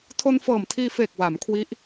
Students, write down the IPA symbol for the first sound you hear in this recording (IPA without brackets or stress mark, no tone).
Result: tʰ